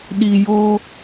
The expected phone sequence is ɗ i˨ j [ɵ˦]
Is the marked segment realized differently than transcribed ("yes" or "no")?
yes